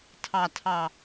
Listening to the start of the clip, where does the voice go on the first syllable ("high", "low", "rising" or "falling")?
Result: low